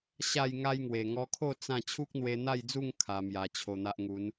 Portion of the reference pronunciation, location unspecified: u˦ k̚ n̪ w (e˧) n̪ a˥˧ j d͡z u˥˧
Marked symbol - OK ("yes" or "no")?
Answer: yes